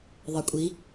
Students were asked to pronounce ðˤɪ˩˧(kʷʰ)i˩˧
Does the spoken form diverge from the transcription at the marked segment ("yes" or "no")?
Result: yes